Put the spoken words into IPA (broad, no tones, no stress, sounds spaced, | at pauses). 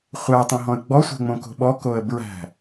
χʷ æ tˤ õ ɦ ɔ̃ ə̯ ɡ͡b ɔ sʷ ɛ̤ ŋ͡m õ k o̤ ɓ ɔ k o ə̯ b ɹ æ̤